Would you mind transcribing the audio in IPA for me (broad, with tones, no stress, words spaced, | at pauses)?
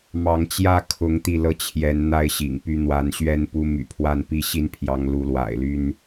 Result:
mɑ˨˦ŋt͡ɕjä˥˨ kʰʊ˨˦ŋ t̪i˥˨lɤ˥˨ t͡ɕʰjɛ˨˦n n̪a˥˨ɪ̯ɕḭ˨˩ŋpy˦ n̪wa˨˦nɕɥɛ˦npu˦ my̰˨˩pʰwa˥˨npi˥˨ ɕi˦npʰjɑ˨˦ŋ lu˨˦lwa̰˨˩ɪ̯ly˦n